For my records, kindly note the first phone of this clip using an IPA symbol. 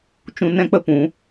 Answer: t͡ʃ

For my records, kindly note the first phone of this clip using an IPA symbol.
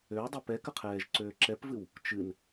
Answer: ø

